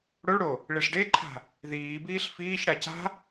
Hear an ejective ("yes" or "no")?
no